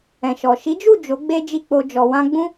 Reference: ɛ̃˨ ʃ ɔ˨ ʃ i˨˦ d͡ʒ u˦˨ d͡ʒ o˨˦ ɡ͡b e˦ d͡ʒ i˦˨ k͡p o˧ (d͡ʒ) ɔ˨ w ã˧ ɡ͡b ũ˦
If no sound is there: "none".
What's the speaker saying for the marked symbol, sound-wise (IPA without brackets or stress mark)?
d͡ʒ